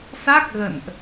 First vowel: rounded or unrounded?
unrounded